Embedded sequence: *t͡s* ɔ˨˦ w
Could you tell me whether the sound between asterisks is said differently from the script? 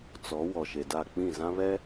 no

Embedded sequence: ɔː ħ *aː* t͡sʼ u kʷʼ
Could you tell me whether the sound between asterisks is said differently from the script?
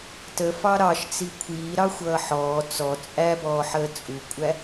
yes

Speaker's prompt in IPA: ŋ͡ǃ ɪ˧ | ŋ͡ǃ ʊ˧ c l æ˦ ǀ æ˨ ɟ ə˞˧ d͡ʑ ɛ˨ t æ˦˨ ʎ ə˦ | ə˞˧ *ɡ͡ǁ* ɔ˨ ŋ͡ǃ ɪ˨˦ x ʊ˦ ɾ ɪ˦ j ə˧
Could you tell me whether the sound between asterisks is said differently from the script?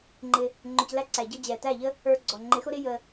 yes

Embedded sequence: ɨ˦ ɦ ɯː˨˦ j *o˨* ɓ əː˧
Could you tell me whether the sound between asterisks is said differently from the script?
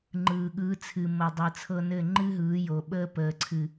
no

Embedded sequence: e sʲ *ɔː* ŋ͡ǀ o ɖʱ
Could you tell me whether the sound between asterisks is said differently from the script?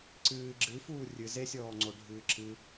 no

